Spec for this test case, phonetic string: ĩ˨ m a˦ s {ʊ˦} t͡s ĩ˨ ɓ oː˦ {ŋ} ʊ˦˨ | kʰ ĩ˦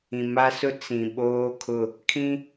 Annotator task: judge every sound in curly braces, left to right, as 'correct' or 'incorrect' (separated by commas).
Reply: correct, incorrect